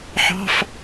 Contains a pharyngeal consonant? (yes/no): yes